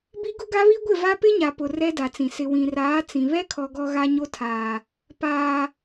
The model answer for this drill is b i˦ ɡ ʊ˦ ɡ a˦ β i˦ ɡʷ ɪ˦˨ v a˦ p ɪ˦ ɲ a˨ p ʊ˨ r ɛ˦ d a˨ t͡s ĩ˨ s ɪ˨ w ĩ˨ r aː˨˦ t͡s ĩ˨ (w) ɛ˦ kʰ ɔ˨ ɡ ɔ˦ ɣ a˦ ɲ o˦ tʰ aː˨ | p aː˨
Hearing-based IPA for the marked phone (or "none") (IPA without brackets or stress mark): β